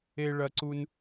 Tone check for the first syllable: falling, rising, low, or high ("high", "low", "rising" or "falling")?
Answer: high